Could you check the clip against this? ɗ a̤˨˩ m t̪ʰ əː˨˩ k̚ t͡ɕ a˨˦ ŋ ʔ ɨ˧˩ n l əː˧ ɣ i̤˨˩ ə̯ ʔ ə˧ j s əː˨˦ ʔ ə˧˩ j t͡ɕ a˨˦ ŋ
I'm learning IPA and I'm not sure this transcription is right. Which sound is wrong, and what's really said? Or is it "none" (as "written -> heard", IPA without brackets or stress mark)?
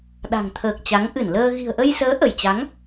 m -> ŋ